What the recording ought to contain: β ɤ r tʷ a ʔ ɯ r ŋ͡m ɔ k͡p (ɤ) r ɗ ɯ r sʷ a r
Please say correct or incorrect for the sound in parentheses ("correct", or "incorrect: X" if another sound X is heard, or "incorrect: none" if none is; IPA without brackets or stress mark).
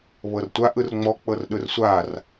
correct